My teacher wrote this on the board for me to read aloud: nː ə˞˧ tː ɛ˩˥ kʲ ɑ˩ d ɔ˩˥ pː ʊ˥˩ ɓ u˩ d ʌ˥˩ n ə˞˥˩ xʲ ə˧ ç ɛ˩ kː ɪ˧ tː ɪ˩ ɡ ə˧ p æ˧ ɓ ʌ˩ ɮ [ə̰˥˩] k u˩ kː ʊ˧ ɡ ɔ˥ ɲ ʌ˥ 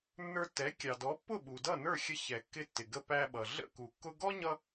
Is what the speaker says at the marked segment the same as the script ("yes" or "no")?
yes